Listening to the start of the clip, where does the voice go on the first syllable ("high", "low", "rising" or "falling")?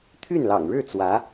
falling